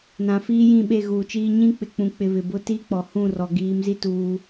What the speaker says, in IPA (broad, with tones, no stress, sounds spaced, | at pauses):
n ã˨ f iː˦ j ĩ˦˨ ɓ e˦˨ ɣ uː˨ t͡ʃ iː˦ ɲ ĩ˦ k͡p ɪ˨ k͡p ũ˨ k͡p ɪ˨ β ɪ˨ b ʊ˦ t i˦ k͡p ɔ˨ h ũ˦˨ r ɔ˨ ɡ iː˨˦ m z i˦ t uː˦